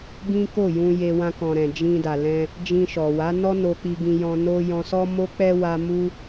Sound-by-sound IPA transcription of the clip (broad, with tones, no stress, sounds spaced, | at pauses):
ɡ ĩ˦ k o˦˨ j ũ˧ j e˧ w ã˧ k ɔ̃˨ ɾ ɛ̃˨ d͡ʒ ĩ˧ d a˨ l ɛ̃˧ | d͡ʒ ĩ˧ ʃ ɔ˨ w a˨˦ n ɔ˦ n o˧ k͡p i˧ ɡ ĩ˧ j ɔ̃˧ n o˦ j ɔ̃˧ s ɔ˦ m o˦ k͡p ɛ˦ w a˦ m u˦